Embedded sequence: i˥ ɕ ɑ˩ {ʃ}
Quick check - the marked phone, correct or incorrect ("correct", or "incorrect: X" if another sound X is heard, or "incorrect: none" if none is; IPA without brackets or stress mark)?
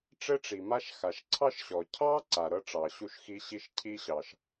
correct